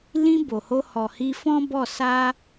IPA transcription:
l ĩ˧ b o˨ h o˧ h ɔ˨ h i˧ f ɔ̃˦ b ɔ˦˨ s a˧

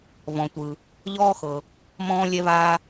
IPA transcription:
v ɔ̃˩ tʷ ɯ˩ | ʎ ɔː˥ x ɤ˩ | m ɔ̃ː˥ lʲ ɛ˥ v aː˥

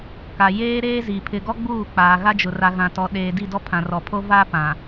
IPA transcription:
k a˨ j eː˦ ɾ eː˦ z i˨ pʰ ɪ˨ ɡ ɔ˦ ɡ͡b uː˦˨ k͡p aː˨ ɣ a˦ d͡ʒ ʊ˨ r a˨ ɣ ã˨ t ɔ˨ ɗ eː˨ d i˦˨ d ɔ˦ pʰ ã˨ r ɔ˨ pʰ o˦ v a˦ p ã˨

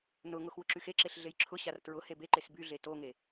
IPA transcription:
n ʊ ŋ ʊ x w ʊ ǁ y x e ǁ e ɬ ɮ e j ǁʰ ʊ ɕ a r t ɹ ʊ h e b e ǃ e s b y ɮ e t o ŋ e

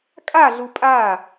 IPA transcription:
kʼ a ɮ u pʼ a

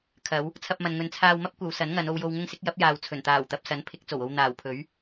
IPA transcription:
kʰ ɐ˨˧ w | t͡sʰ ɐ˧ p̚ m ɐ˨ n ŋ ɵ˨ n t͡sʰ aː˧ w m ɐ˥ p̚ kʷ ɐ˨˧ w s ɐ˨˥ n ŋ ɐ˨˧ n o˨ w j o˨ w ŋ ʊ˧ ŋ s ɪ˨˥ k̚ j ɐ˨˥ p̚ j aː˨ w t͡sʰ ɵ˨˩ n t̪ aː˨˩ w t̪ ɐ˨ p̚ s ɐ˨˥ n pʰ ɪ˨˥ k̚ t͡s o˨˩ w o˧ w n̪ aː˨˩ w pʰ ɵ˨˥ ɥ

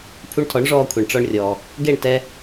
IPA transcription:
pʰ u˧ ɳ tʰ ɔ˩˥ ɳ ʐ ɔː˧ kʷʰ e˩ ɳ ʈ͡ʂ ɔ˧ ɳ rʲ ɔː˩ | ɡ e˥˩ ɳ t ɛ˧

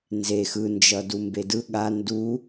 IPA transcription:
n z e x ɯ n d͡ʒ ʌ d u m b e d ɯ ɠ a n d u

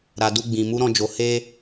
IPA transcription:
ɾ a˨ d u˧ ɡ͡b ĩ˨ m u˨˦ ɾ ɔ̃˧ d͡ʒ o˨ h e˧

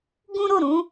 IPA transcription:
ɡ ũ˦ ɾ o˦˨ ɾ ũ˨˦

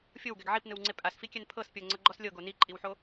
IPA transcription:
fʲ o w ɡ ɛ ɡ ʕ i p n ɯ w ŋ͡ǀ e pʼ a s f i kʲ ɛ n pʰ ɤ s pʲ ɤ ŋ͡ǀ ɤ ɡ͡ǃ ɔ s lʲ ɤ ɡ o n i ǃʼ i w ħ o

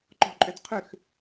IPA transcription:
ǃ ɔ̤ ǃʼ ʏ d qʰ ʏ x

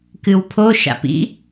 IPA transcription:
k ɨ w pʰ o ʃ a̰ p ḭ

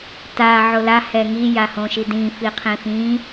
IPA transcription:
t a ʕ o l a h ɛ ŋ i j a h õ ʃ i d ĩ f i qʰ ĩ f ĩ

